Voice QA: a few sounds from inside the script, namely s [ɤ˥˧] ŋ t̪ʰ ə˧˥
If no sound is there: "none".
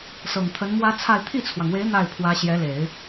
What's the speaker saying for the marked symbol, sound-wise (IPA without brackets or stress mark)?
ɤ˨˩